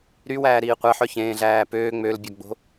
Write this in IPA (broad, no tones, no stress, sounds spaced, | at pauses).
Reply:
ɾ y w æː ɾ iː qʷ æ ħ œ ç ẽː ɮ æː p øː ŋ͡m ø l bʲ ɔ ɡ͡b o̤